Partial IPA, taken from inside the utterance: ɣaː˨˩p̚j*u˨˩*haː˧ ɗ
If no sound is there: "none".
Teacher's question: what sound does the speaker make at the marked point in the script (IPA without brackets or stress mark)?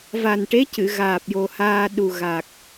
o˨˩